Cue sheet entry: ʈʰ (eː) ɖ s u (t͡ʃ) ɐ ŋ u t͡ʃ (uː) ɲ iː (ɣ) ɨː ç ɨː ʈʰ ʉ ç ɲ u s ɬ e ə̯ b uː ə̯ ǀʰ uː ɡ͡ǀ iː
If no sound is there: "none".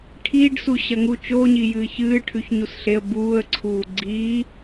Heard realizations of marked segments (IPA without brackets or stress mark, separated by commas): iː, ɕ, oː, j